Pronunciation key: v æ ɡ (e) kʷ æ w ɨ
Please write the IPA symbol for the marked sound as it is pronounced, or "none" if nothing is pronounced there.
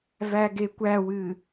e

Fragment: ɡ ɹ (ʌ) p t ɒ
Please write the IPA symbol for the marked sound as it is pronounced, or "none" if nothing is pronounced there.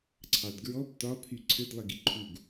ɔ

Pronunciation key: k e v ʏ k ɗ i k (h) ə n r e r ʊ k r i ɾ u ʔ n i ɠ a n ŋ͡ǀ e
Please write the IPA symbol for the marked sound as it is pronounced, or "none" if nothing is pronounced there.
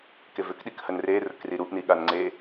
h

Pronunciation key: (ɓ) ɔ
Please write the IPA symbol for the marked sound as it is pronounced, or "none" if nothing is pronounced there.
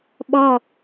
ɓ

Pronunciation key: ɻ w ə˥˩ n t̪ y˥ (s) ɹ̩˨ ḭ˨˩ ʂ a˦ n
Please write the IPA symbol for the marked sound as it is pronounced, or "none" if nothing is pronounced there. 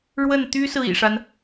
s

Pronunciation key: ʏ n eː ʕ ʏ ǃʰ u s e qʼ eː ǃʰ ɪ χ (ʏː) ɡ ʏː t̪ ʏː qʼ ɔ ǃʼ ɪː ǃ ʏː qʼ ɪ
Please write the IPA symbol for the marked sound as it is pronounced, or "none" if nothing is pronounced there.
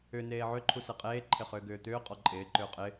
ʏː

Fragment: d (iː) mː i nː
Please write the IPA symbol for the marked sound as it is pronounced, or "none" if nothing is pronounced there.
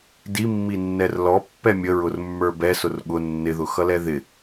i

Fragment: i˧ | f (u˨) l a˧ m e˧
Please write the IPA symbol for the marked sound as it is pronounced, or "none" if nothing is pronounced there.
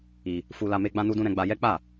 u˧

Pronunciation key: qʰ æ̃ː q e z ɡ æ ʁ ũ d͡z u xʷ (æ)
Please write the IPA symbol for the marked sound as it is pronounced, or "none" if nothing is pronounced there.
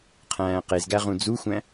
æ̃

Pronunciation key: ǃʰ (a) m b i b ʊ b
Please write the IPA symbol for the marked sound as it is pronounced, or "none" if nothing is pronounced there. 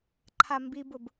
a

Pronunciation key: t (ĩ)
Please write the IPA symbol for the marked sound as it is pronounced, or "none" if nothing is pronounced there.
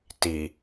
i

